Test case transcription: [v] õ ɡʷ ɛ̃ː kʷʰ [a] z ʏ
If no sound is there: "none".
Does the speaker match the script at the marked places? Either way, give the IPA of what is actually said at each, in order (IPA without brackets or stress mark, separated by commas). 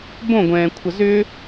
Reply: b, ɐ